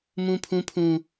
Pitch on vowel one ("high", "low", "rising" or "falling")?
low